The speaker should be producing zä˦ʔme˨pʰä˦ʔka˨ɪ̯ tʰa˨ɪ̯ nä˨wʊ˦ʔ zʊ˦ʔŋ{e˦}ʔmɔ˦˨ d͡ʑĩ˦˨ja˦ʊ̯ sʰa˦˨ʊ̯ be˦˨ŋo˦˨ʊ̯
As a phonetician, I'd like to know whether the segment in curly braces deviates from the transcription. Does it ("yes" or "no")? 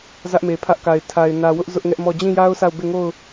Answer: yes